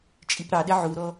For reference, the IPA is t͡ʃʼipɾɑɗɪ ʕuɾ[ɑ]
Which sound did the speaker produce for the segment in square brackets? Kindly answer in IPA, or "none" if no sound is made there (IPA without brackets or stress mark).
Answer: ɔ